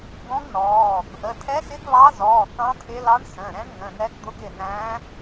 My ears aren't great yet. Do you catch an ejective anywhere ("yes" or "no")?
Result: no